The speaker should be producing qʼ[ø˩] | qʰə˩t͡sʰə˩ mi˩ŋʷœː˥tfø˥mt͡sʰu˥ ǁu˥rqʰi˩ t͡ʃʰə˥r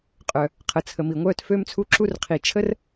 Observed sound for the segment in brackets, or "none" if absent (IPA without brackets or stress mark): œ˩